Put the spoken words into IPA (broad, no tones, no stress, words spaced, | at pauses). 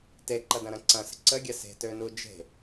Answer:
teǃɐdɐ̃ɾɐ̃ ǀɐ̃sə̤ ǀəɡʲɐ se̤tønu d͡ʒe̤